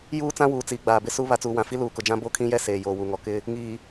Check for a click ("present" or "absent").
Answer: absent